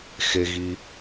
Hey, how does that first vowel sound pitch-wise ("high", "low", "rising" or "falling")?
low